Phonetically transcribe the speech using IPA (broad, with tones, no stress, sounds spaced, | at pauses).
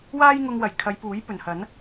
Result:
w aː˥ j ŋ ʊ˧ ŋ w ɐ˨˩ j kʰ ɐ˨˧ j p uː˨˥ j p ɵ˨˩ n h ɐ˨˥ n